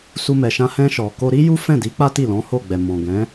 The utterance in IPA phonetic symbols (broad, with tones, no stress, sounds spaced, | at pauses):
s u˧ m ɛ˧ ʃ ã˦ h ɛ̃˧ ʃ ɔ˨ k o˧ ɾ i˦ j u˦ f ɛ̃˦˨ d i˨˦ k͡p a˦ t i˦˨ l ɔ̃˨˦ h o˦˨ ɡ͡b ɛ˨ m ɔ̃˨ ɡ ɛ̃˨˦